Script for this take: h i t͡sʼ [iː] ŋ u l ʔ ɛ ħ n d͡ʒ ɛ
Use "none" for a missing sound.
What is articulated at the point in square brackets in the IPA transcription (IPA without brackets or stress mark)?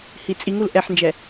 i